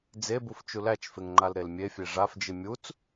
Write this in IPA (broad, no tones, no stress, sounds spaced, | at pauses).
d͡z e b u f t͡ʃ u l æ t͡ʃ f e ŋ ŋ͡ǃ a l ɾ e l mʲ e fʲ e ʐ a f d͡ʒ ɨ mʲ u t͡s